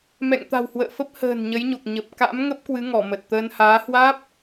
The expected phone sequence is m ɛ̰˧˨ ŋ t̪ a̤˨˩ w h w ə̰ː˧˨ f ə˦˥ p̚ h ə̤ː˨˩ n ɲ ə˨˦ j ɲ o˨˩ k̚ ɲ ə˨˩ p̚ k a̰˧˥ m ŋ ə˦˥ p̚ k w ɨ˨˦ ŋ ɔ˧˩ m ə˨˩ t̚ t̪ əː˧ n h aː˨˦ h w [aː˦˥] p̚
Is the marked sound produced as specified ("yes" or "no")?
yes